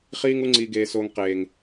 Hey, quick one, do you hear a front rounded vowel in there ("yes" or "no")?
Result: no